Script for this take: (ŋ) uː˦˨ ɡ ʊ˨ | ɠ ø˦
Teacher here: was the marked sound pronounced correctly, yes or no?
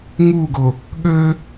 yes